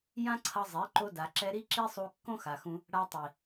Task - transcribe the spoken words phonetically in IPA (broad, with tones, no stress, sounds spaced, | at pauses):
j ã˦ ǀʰ ʌ˧ zˤ e˨˦ ǃ o˧ d a˨ ǁ ɛ˧ ɾ i˦ ǁ i˦ sˤ u˧ kː õ˦ x a˨ x ũ˧ | ɽ a˧ tˤ i˨